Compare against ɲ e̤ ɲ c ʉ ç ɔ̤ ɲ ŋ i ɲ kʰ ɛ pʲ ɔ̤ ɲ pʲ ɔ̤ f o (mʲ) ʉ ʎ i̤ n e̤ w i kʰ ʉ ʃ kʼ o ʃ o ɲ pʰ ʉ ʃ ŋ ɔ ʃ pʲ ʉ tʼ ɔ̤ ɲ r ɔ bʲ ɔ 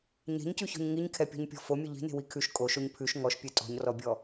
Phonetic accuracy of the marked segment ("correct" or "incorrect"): correct